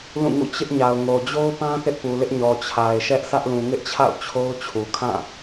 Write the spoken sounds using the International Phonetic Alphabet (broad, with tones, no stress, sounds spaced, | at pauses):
l ũ˦˨ ŋ ṵ˦˨ t͡ɕ ɪ˦ ʔ ɲ a˨ ʊ̯ ŋ o˨ d͡ʑ o˦ ʊ̯ p ã˦ θ ɪ˦ ʔ p u˨ l ɪ˦ ʔ ɲ ɔ˨ t͡ɕʰ a˨ ɪ̯ ʃ ɛ˦ ʔ sʰ ä˦ ʔ l ũ˨ ŋ ɪ˦ ʔ t͡ɕʰ a̰˦˨ ʊ̯ t͡ɕʰ o˦ ʊ̯ t͡ɕʰ u˨ kʰ ã˦˨